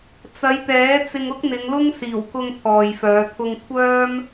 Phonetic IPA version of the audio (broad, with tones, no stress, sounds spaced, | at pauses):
t͡s ɐ˨˧ j t̪ ɛː˨˥ t͡s ɪ˧ ŋ ʊ˥ k̚ n̪ ɪ˨˧ ŋ l ʊ˥ ŋ s iː˨˩ w k ʊ˧ ŋ t̪ʰ ɔː˨ j f œː˨˧ t̪ʰ ʊ˧ ŋ kʷʰ œː˥ m